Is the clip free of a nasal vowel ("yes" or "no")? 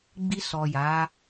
yes